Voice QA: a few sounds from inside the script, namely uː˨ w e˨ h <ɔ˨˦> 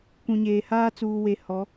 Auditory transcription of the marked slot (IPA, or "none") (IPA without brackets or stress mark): ɔ˨˦